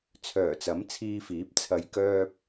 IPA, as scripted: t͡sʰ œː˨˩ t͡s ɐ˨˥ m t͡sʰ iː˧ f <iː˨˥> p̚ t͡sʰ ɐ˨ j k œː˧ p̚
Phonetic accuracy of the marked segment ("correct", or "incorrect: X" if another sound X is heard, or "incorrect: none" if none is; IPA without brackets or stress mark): correct